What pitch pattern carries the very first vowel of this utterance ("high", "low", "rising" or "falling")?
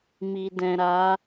low